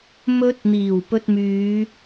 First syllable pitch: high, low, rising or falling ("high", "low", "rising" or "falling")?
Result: high